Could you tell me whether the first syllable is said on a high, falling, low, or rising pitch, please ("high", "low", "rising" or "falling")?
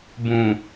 low